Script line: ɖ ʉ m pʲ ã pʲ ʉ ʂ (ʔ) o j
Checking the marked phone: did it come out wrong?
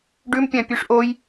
no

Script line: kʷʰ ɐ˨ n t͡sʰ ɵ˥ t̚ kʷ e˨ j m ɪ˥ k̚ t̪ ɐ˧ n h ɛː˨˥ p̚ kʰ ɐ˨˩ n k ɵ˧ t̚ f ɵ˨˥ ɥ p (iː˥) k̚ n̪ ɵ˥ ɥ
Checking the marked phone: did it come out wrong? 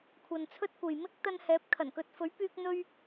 yes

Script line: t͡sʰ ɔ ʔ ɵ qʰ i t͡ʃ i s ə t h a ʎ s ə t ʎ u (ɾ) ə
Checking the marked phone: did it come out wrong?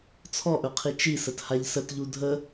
yes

